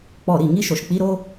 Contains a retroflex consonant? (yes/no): no